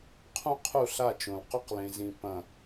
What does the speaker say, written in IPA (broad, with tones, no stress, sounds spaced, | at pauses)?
qʰ ũ˦ qʰ u˦˨ ɬ a˦˨ t͡ʃ õ˨ l q ɵ˦ q l ẽ˨ z ĩ˨ p ɐ̃˨